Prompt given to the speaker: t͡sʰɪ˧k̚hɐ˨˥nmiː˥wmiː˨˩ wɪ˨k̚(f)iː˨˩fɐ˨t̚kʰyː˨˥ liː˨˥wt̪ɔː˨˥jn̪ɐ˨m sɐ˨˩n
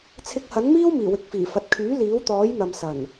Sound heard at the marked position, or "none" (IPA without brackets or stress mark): f